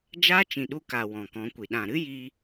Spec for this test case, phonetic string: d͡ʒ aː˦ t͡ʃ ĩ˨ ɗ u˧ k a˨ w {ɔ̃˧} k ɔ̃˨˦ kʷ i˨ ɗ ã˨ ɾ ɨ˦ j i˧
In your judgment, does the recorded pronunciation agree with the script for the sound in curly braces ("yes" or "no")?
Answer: no